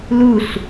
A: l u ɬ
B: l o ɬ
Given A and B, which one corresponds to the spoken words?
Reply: A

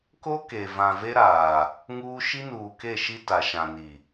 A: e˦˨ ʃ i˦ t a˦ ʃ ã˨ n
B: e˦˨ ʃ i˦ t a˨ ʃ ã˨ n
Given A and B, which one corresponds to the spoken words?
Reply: B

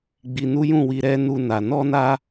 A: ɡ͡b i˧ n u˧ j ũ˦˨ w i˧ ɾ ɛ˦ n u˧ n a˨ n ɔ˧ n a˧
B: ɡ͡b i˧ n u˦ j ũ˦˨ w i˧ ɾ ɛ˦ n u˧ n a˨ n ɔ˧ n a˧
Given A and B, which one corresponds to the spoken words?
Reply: B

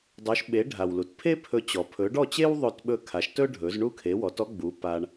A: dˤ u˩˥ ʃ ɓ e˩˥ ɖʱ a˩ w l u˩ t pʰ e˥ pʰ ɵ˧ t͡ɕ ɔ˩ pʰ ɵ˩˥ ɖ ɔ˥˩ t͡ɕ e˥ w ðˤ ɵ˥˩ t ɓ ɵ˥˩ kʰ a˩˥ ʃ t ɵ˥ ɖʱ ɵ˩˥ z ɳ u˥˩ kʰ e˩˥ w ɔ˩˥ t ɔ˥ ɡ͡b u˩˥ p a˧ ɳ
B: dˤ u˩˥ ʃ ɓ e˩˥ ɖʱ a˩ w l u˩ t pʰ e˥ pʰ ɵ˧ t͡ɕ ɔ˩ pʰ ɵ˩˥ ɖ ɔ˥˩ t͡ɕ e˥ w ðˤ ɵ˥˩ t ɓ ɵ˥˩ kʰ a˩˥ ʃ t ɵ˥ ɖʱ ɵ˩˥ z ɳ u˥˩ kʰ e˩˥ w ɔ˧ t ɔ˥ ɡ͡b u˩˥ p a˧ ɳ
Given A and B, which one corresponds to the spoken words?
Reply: A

